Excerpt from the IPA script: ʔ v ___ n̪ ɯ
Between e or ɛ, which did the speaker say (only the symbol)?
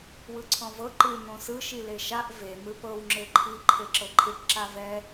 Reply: e